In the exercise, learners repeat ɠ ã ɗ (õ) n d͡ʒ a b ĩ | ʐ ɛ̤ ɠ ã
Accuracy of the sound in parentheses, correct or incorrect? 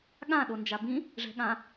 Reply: incorrect